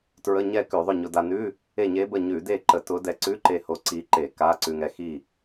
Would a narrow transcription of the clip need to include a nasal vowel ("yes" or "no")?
no